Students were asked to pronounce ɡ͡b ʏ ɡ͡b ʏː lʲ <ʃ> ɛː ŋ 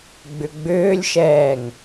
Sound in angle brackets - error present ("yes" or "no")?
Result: no